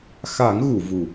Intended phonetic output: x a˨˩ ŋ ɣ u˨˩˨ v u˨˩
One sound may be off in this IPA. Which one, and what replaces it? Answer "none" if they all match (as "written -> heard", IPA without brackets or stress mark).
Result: a˨˩ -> a˨˩˦